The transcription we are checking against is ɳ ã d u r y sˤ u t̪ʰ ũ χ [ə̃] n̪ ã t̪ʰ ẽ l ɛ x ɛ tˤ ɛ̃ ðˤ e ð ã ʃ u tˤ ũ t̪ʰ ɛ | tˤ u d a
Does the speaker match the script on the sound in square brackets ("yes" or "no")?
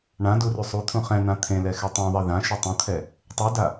no